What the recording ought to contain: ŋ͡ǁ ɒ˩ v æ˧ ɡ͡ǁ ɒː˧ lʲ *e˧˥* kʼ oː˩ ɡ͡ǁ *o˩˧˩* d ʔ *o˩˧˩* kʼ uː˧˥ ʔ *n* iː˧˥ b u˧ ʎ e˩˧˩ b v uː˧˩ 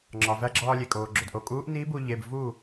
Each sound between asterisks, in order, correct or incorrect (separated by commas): incorrect, incorrect, correct, correct